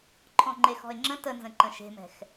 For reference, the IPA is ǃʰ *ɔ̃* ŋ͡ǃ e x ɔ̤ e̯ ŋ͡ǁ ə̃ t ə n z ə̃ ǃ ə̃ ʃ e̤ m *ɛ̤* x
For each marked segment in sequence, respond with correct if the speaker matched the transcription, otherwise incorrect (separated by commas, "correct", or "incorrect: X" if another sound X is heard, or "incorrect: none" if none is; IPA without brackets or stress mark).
correct, correct